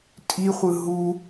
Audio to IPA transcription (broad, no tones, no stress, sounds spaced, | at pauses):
tʼ i χʷ ɯ ɦ u